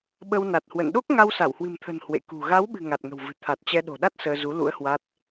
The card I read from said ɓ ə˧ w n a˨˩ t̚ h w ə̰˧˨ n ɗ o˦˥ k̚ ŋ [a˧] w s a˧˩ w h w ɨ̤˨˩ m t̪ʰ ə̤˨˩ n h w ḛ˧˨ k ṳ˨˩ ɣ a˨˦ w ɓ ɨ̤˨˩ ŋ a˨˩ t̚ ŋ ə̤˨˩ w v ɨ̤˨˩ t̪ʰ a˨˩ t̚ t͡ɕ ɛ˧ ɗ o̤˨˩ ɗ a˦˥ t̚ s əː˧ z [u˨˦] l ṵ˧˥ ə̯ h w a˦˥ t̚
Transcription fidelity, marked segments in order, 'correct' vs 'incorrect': correct, correct

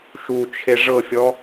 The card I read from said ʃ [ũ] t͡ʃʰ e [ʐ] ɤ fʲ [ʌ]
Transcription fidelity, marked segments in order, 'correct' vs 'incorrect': incorrect, correct, incorrect

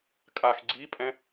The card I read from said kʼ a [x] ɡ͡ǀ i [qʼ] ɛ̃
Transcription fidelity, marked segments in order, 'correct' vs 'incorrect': correct, incorrect

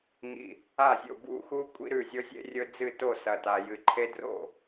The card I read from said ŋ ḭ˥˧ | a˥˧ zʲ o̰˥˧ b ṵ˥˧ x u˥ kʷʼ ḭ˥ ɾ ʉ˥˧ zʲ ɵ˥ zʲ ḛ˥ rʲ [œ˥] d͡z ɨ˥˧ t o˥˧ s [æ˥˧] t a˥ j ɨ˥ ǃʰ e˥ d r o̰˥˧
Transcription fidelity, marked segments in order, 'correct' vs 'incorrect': incorrect, incorrect

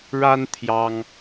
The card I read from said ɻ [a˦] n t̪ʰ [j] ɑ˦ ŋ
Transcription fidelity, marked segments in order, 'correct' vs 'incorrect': correct, correct

